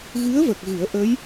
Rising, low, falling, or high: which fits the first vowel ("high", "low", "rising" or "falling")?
rising